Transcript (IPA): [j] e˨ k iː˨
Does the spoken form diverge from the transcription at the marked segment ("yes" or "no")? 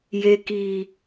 no